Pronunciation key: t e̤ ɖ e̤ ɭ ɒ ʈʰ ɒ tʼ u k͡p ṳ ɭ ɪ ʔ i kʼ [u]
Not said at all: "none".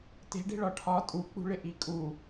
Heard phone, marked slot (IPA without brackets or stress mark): u